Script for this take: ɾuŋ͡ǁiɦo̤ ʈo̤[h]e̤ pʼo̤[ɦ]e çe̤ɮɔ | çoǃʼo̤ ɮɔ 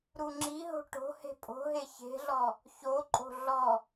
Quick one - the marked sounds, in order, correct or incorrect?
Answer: correct, correct

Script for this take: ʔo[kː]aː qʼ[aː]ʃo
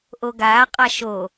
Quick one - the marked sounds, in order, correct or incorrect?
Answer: incorrect, incorrect

